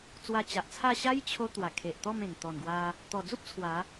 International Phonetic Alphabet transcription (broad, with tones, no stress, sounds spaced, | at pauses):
t͡s w a˧ t͡ɕ a˨ ʔ t͡sʰ a˥˧ ɕ a˦ j t͡ɕʰ o˦ t̪ w a˨˩ kʰ e˨ ʔ t̪ ɔ˥˧ m ẽ˨˩ ŋ t̪ ɔ˨˩ n ɡ w a˧ | t̪ ɔ˨˩ d͡z u˦ p̚ t͡sʰ w a˨˦